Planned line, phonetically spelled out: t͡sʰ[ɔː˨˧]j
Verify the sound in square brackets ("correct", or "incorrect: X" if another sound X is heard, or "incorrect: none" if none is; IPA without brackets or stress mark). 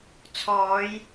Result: correct